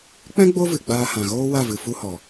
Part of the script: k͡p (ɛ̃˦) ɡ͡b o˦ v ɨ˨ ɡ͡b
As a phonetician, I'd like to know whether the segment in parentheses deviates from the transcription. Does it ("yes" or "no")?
no